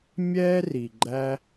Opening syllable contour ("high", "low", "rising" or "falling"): high